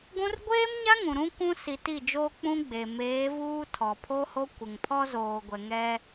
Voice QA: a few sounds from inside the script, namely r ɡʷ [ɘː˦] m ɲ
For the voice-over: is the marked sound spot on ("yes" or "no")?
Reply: no